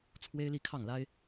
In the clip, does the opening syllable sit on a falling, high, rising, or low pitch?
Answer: high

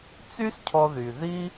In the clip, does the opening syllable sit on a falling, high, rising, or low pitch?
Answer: high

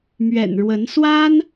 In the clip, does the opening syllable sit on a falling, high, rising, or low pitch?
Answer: low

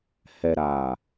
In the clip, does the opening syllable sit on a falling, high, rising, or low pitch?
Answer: low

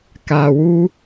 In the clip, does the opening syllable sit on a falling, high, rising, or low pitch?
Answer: low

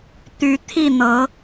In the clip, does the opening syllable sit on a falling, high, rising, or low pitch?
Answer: rising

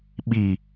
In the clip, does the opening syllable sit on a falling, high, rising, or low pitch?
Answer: low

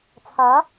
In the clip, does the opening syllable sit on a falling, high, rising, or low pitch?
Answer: rising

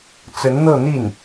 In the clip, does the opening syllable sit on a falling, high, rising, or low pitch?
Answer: rising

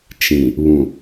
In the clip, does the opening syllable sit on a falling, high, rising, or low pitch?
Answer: low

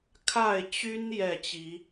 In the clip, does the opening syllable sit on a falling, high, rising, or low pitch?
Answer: falling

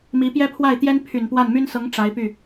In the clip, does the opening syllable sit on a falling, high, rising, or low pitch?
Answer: rising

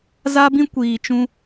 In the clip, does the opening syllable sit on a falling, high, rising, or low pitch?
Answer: high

